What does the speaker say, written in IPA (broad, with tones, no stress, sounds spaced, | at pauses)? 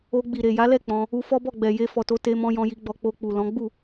o˧ ɡ͡b i˨ ɾ e˨ j a˨˦ l ɛ˦˨ k͡p ɔ̃˧ | u˧ f ɔ˦ b ɔ˦˨ ɡ͡b ɛ˨ j e˧ f ɔ˨ t o˧ t e˧ m ɔ̃˧ j ɔ̃˧ j i˧ ɡ͡b ɔ˧ k͡p o˧ k͡p u˨ l ɔ̃˨˦ ɡ͡b u˦˨